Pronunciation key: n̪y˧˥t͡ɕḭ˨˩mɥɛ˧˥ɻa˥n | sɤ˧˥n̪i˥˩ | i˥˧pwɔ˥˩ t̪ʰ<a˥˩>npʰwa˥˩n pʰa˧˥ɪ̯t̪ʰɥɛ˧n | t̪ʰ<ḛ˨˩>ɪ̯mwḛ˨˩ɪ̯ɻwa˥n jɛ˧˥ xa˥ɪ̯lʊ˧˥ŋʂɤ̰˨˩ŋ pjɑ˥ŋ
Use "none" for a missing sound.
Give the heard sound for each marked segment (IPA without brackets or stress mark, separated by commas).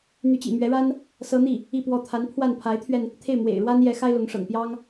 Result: a˧˥, e˥˩